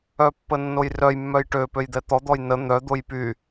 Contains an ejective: no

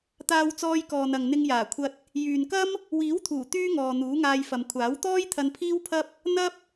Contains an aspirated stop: yes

